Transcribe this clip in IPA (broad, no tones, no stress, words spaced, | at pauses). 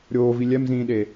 ɾʲoːvi lʲɛmzĩːɗe